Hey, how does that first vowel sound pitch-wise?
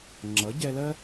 rising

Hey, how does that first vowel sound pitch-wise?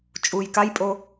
low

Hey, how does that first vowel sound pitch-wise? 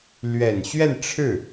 low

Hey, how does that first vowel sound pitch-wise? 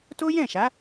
high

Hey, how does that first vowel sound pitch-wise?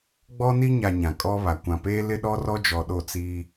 high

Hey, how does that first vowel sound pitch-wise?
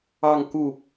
falling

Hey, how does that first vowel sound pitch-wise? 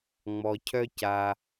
low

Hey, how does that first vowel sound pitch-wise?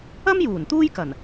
high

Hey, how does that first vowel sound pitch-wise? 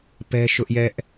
high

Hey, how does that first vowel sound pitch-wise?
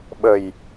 low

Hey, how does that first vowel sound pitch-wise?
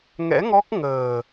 rising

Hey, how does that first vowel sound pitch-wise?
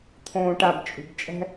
low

